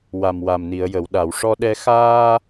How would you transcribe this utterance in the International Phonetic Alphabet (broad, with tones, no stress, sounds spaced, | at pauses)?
w a˨˩ m w a˨˩ m n i˨˩˨ ə̯ j ə˨˩˨ w ɗ a˨˩˨ w ʂ ɔ˧ ɗ ɛ˧ x aː˧